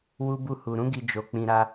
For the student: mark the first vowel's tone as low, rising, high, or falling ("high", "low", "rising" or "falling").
high